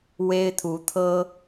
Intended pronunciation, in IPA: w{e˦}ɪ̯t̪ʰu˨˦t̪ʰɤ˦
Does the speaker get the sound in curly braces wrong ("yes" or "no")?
no